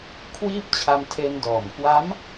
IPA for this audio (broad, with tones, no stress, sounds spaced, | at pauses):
kʰ w iː˥˩ p̚ t͡ɕʰ a˧ m tʰ e˧ n d ɔː˨˩ m k w a˦˥ m